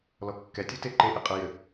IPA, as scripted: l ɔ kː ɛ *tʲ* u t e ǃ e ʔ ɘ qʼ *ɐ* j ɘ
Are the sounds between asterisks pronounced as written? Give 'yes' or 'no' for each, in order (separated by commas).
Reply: yes, yes